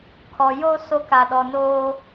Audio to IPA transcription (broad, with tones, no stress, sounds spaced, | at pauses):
kʰ ɔ˨ j o˦ s o˦ k a˨ ɗ ɔ˨ n oː˦